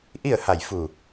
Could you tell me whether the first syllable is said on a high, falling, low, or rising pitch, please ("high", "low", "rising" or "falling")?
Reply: falling